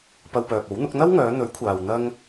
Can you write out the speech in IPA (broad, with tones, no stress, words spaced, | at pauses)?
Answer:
pɐ˧wpœː˨p̚o˨˥wn̪ʊ˨˥k̚ n̪ɐ˥wŋœː˨˧n̪ɵ˨˥ɥkʷʰaː˨w n̪ɐ˥ŋ